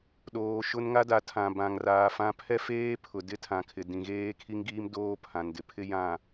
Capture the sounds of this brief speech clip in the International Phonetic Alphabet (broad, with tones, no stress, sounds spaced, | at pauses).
ɗ oː˨ ʃ ʊ˦ n ŋ a˦ d a˨˦ tʰ ã˨ b ã˨ ŋ r aː˨ f ã˦ pʰ ɛ˦ f eː˦ pʰ ʊ˨ d ɪ˦ tʰ ã˨ kʰ ɪ˨ d ĩ˨ ɣ eː˦ kʰ i˦ ŋ ɡ iː˦ m d oː˦ pʰ ã˨ n d ɪ˨ pʰ ɪ˦ j ã˨